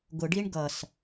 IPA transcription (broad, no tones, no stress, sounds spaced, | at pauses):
ɡ ʊ ɖ i ɳ ɡ ʌ s